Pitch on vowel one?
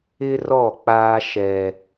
high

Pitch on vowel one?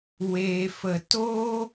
low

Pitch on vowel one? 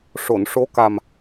low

